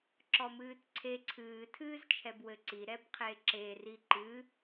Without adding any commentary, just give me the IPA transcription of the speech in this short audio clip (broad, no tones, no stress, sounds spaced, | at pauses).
ǁ ɔ m ɨː t ǀʰ e ǀʰ ɨː tʰ ɨː z t͡ʃʰ ɛ b w ɘ ǀ i ɾ ɛ b qʰ e ǁ e r i ǃ ɨ